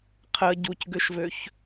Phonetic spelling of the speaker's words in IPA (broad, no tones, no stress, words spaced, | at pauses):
qʰə ɟucɡøʃvøç